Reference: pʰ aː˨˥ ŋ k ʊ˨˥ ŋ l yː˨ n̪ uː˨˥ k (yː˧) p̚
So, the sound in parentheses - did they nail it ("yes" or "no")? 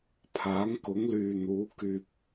yes